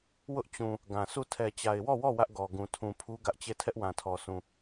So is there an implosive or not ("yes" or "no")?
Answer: no